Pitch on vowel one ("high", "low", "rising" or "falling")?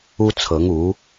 high